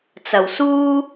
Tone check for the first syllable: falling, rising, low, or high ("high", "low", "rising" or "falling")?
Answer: low